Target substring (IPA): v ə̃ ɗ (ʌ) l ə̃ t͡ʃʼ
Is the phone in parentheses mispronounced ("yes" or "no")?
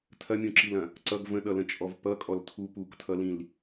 no